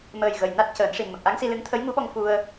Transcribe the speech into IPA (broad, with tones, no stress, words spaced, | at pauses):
məː˨˩j ɣə˨˩jna˦˥t̚cəː˨˩˦nʂi˨˩n mə˨˩k̚ʔa˧˥ŋsi˧lɨ˧˥ŋ t̪ʰə˧˥jŋu˧˥ɓɔ˧ŋ fu˧ə̯